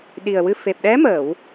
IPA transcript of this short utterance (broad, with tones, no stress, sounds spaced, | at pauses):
ɗ i˨˩ ə̯ w ɨ˧ f e˨˩ p̚ ɗ ɛ˧˥ m əː˨˩˨ w